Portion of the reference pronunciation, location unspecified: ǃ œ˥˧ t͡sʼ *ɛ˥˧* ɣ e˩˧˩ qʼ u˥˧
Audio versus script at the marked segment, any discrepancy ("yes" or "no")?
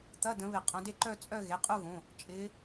yes